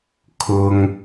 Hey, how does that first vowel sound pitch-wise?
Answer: high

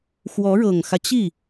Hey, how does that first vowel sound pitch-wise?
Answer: rising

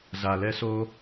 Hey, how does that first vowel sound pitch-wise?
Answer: low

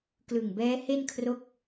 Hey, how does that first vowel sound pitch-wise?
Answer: low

